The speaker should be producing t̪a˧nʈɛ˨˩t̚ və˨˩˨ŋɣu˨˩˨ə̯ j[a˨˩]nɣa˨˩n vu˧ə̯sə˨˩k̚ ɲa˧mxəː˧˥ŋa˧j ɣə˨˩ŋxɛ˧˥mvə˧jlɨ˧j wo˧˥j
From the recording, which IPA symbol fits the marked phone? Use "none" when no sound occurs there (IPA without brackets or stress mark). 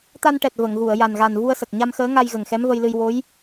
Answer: a˨˩